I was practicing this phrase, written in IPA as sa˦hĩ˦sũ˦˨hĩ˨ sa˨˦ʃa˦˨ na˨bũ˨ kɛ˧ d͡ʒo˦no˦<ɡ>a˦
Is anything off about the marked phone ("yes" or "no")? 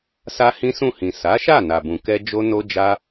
yes